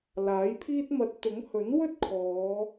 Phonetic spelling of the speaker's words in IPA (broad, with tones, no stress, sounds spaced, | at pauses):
l aː˨˥ j pʰ iː˥ t̚ m ɐ˧ t̚ t̪ ʊ˨˥ ŋ h ɵ˨˥ n w ɵ˥ t̚ kʰ ɔː˨˧